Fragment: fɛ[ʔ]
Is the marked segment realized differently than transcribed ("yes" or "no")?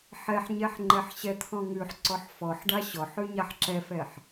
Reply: yes